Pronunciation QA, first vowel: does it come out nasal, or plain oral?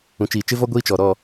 nasal